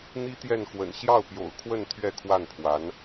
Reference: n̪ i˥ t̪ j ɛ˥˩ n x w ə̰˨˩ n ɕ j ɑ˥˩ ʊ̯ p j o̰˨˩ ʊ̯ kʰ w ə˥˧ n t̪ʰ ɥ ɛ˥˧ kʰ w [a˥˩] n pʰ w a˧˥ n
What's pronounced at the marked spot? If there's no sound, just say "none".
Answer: a˥˩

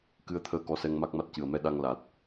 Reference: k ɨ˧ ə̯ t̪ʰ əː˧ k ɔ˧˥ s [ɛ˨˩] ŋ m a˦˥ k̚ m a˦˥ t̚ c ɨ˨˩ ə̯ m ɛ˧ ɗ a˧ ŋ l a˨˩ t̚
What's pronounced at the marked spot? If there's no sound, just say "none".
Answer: ɛ˧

